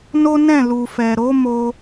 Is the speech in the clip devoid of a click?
yes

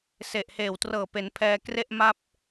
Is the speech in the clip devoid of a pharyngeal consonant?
yes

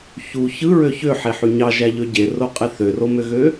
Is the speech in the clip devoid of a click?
yes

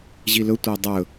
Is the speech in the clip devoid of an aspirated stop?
yes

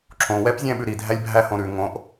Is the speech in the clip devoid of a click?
no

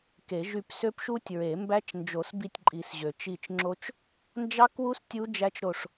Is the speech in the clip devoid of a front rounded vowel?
no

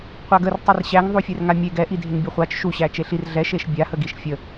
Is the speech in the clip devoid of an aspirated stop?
yes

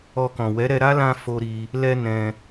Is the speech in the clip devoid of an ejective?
yes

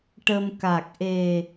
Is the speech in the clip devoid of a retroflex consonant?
no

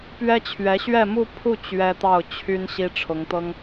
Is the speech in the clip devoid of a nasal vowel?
yes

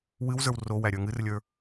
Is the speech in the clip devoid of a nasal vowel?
yes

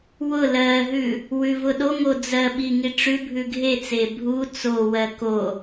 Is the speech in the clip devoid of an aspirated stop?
yes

